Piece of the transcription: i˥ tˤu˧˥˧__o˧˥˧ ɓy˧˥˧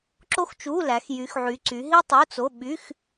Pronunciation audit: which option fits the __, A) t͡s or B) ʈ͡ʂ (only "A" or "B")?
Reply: A